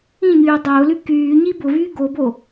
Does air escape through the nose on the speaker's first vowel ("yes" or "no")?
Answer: yes